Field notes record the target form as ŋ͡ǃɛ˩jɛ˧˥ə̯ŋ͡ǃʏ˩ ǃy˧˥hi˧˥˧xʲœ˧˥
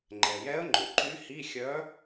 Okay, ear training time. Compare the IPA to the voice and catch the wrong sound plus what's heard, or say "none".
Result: none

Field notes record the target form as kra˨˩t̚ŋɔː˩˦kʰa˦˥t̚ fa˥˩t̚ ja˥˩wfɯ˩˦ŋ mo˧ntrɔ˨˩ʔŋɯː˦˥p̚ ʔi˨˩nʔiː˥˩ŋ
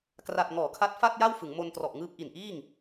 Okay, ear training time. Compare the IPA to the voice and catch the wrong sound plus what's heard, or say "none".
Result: none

